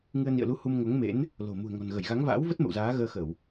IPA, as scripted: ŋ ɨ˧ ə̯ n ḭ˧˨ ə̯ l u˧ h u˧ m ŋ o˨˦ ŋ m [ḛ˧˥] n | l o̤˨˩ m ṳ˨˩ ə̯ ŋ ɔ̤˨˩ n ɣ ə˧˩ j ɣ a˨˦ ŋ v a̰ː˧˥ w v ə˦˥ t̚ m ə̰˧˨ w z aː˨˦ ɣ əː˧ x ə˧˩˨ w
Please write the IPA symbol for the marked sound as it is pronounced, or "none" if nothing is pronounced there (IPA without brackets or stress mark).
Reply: ḛ˧˥